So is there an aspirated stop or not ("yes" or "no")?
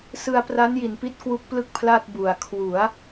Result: yes